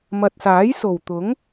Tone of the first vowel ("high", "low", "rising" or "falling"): low